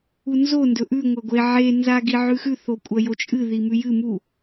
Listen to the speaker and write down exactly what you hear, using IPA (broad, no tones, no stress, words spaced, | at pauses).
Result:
unzo ndɵʔʉ ŋʷɐɡʷe ʕe nzaɡiʕʉxʉ θokʷʼɐjot͡ʃʼɨ ðimʉjɨ mu